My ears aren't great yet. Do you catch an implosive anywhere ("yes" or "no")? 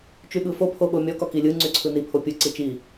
yes